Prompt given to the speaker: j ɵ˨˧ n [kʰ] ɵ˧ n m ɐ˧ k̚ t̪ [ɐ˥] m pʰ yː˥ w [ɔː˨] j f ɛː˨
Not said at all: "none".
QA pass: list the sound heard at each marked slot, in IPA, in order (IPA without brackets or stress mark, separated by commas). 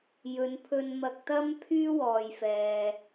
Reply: pʰ, ɐ˥, ɔː˨